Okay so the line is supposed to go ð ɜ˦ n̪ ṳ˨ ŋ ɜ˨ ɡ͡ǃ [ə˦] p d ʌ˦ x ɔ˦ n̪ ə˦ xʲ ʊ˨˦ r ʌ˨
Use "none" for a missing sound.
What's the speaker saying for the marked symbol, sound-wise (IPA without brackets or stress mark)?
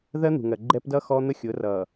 ɛ˦